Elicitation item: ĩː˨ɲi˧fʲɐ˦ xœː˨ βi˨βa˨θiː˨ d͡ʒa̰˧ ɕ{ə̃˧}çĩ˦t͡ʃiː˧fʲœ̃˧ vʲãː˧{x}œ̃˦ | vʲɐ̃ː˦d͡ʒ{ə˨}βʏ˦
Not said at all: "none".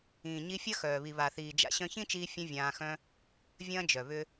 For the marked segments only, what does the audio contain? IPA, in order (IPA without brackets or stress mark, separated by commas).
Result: œ̃˧, x, œ˨